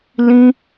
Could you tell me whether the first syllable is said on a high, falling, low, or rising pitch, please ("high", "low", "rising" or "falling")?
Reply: high